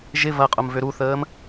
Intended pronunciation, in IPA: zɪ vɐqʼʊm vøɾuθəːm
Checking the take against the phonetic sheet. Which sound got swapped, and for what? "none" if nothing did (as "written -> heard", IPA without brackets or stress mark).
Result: z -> ʒ